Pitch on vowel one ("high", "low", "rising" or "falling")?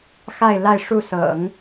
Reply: falling